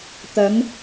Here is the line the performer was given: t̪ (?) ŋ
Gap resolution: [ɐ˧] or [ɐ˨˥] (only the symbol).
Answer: ɐ˨˥